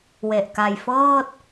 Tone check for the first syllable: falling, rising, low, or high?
low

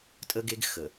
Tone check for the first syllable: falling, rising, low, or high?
high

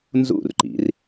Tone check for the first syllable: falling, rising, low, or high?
falling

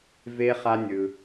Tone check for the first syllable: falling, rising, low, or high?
low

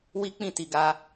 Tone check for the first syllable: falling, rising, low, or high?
high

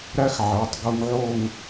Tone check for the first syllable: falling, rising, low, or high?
high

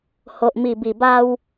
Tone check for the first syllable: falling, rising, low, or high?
low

